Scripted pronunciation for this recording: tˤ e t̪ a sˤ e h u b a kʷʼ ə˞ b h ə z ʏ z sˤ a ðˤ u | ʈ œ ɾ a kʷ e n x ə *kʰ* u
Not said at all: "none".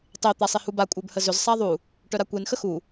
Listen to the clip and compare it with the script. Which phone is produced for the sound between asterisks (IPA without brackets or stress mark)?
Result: x